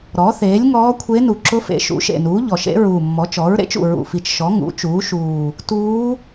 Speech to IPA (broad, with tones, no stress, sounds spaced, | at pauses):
ɾ ɔ˩˥ θ eː˩˥ lʲ ŋ ɔː˧˥ kʷʰ e˧˥ n u˨˩ ǁ ʊ˧˥ f ḛ˩˥ ʃ ṵ˩˥ ʃ ḛ˨˩ n uː˩˥ ʎ ɔ˨˩ ʃ ḛ˧˥ ɹ uː˨˩ mː ɔ˩˥ t͡ʃ ɔ˩˥ ɹ ɾ ḛ˩˥ t͡ʃ ṵ˨˩ ɹ ṵ˨˩ f i˨˩ t͡ʃ ʃ ɔ˩˥ ŋ ṵ˩˥ t͡ʃ uː˩˥ ʃ uː˨˩ | t uː˧˥